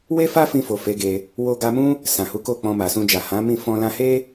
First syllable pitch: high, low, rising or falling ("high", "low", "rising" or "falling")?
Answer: high